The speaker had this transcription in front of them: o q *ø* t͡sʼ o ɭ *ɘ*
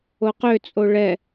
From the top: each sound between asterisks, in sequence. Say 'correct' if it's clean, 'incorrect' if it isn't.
correct, incorrect: ɛ

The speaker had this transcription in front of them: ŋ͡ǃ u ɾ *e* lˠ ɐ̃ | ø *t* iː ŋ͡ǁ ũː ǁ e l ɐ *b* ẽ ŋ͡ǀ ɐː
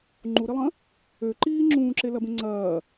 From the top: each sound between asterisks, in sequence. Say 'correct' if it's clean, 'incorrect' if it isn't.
incorrect: i, incorrect: ǃ, correct

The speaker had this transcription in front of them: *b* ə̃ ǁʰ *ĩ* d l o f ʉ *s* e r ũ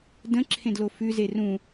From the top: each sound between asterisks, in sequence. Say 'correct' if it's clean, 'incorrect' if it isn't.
incorrect: d, incorrect: ẽ, incorrect: z

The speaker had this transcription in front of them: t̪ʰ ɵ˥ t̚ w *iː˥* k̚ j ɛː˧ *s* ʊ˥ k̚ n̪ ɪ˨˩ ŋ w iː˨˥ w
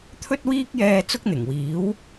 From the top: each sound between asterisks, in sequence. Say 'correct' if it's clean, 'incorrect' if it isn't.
correct, incorrect: t͡s

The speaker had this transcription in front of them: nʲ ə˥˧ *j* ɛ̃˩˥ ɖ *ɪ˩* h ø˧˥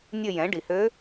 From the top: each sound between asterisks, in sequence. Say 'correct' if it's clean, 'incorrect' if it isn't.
correct, incorrect: i˩

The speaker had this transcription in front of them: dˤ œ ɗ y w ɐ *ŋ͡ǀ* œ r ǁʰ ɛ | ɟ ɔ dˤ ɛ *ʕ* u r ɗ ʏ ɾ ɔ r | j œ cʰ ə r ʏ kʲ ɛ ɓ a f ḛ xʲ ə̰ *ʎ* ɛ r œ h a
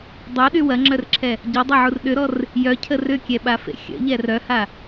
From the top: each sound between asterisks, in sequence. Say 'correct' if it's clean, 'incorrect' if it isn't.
incorrect: ŋ͡ǁ, correct, correct

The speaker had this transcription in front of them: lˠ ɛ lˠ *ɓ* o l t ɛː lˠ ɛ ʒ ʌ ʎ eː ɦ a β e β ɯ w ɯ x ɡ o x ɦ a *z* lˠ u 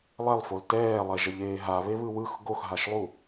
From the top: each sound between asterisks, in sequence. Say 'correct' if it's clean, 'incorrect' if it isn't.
incorrect: f, incorrect: ʃ

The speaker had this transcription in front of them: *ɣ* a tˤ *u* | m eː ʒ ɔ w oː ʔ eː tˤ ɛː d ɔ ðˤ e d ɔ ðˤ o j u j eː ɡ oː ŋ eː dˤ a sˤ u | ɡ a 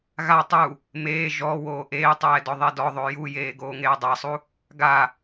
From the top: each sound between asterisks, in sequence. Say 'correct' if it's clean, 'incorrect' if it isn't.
correct, correct

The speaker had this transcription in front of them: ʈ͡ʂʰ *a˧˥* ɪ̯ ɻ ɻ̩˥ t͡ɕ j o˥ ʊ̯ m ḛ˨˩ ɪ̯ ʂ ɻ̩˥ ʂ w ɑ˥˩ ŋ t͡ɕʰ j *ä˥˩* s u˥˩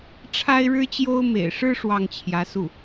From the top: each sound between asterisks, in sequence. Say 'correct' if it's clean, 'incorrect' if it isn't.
incorrect: a˥, incorrect: ä˧˥

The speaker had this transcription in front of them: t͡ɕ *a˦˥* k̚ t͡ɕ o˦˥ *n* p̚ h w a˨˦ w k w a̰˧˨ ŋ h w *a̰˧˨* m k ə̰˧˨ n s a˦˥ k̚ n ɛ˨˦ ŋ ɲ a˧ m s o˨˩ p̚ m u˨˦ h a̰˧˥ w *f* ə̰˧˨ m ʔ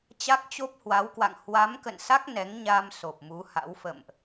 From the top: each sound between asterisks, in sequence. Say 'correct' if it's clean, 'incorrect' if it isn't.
correct, incorrect: none, incorrect: a˨˦, correct

